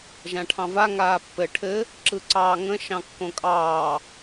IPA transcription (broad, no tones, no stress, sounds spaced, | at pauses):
ʒ ã ʈʰ ɑ̃ v a ŋ aː pː ɘ ʈʰ ɘ | ǁ ɯ ǀ ɑː ŋ ə̃ ʃ ɑ̃ kː õ kʼ ɑː